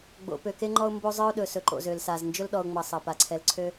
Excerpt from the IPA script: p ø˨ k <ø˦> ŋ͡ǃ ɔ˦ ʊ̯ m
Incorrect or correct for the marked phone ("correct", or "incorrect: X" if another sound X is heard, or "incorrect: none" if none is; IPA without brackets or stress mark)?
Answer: incorrect: e˦